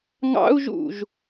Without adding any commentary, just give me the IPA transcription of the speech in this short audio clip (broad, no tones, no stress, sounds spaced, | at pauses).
ŋ ɑ̰ u̯ ʒ ṵ ʒ